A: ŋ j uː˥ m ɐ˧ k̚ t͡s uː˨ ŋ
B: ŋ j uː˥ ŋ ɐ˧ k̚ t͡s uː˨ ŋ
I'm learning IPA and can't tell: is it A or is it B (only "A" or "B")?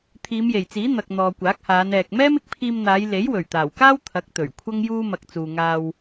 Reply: A